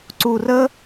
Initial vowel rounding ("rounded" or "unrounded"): rounded